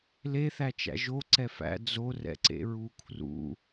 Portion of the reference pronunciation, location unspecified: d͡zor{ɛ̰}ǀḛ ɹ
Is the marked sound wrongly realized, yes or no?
no